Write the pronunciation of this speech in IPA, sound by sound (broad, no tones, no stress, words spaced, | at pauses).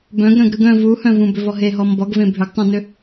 bœ̃ɡ ɾœ̃ɡɾɯɡœ̃ vuhœ̃vũ bʏvɔɦeɦɔ mbɔɡvẽ bʱʏɡtˤœ̃nʏ